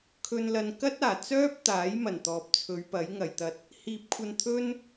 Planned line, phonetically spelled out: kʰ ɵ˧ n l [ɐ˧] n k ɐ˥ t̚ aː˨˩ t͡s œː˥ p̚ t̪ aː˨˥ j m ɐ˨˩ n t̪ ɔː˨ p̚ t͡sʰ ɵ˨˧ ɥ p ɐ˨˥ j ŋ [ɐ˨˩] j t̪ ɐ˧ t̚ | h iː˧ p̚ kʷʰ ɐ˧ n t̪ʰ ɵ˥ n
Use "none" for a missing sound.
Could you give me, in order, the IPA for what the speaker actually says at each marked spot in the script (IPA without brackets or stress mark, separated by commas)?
ɐ˧, ɐ˨